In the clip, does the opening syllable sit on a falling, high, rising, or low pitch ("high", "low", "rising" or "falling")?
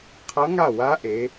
rising